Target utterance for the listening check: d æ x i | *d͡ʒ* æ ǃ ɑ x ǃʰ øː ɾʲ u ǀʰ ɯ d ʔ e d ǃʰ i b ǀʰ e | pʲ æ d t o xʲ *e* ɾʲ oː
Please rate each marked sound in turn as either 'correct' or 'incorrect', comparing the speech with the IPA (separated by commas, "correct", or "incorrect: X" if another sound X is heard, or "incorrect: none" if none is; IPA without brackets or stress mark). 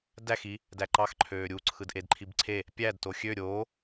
incorrect: d, incorrect: ø